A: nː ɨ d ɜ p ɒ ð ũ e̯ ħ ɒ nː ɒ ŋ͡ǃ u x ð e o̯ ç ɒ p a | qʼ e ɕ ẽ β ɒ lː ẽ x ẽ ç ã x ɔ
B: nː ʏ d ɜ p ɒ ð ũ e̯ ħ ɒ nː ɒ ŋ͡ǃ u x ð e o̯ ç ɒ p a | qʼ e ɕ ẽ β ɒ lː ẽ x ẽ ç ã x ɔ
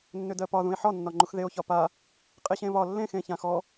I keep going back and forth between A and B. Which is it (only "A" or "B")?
B